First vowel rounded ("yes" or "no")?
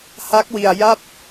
no